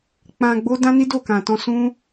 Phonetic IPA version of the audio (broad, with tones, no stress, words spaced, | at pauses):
k͡pã˧ɡ͡bo˦dã˦ni˦ do˦˨kã˨tɔ̃˧ sũ˦